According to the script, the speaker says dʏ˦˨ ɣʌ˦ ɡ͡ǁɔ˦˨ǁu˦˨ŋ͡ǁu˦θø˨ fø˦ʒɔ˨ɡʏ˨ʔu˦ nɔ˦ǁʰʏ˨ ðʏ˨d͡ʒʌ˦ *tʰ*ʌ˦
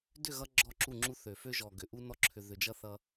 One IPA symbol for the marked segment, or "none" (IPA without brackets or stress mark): θ